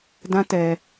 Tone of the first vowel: high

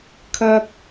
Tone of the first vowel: high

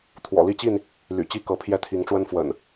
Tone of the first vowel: low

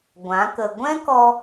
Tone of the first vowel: rising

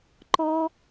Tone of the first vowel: high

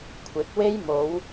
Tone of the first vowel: rising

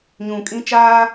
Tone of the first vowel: low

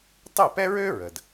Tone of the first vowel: falling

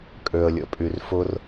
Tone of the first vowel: low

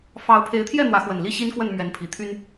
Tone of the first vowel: rising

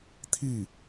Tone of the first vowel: falling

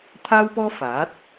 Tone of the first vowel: high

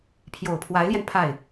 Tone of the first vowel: low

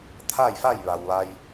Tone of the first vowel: falling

